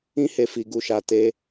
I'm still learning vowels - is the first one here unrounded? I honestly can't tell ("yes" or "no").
yes